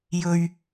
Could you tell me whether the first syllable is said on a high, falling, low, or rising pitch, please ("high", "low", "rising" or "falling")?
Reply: low